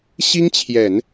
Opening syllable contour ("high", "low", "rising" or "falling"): high